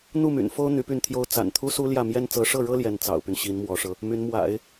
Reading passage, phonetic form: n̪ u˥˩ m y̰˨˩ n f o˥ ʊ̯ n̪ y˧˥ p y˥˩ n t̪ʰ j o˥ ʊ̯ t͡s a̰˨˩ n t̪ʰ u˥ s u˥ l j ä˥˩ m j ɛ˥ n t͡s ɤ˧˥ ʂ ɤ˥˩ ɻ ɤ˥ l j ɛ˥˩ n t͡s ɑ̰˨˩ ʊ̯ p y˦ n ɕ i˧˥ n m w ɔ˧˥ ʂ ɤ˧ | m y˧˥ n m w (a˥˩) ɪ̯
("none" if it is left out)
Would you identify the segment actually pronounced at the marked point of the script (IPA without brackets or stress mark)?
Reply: a̰˨˩˦